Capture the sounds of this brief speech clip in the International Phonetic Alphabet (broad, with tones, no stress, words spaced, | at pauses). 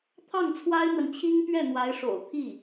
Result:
t̪ʰɑ˥˩ŋt͡sʰwa˥ɪ̯n̪wə˨nt͡ɕʰi˥ŋ pɥɛ˥˩n̪wa˧˥ɪ̯ʂo̰˨˩ʊ̯ t̪ʰi˥˩